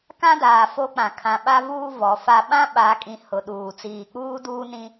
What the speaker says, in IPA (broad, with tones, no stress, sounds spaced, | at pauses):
k ã˦ d aː˨ f o˦ k͡p ã˨ kʰ ã˨ ɓ a˦ v uː˦ v ɔ˨ f a˦ ɓ ã˦ ɓ a˨˦ kʼ ĩ˨ h ʊ˨ ɗ uː˨ t͡s iː˨ k͡p uː˦ d uː˦ n ĩ˦